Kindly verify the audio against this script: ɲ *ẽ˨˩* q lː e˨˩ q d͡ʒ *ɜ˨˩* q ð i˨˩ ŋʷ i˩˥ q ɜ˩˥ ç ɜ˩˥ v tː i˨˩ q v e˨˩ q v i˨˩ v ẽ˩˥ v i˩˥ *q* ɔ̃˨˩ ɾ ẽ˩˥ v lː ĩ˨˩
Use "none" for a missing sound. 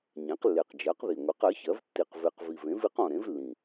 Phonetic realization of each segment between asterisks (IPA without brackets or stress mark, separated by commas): ẽ˩˥, ɜ˩˥, q